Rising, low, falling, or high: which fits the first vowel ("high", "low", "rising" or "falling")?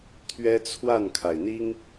high